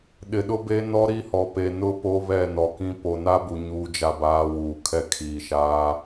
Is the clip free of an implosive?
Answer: no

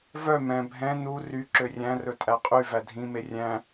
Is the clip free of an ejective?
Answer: no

